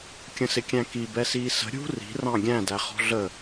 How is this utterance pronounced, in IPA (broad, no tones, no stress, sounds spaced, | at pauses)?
kʲ ə̃ s ɪ kʲ æ̃ k i b ɛ s iː s ə̤ ɾʲ ṳ r i̤ r ɑ̃ ɡʲ æ̃ d æ χ ɔ̤ ɮ ə